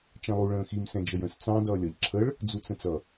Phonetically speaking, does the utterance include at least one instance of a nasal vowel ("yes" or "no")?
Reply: yes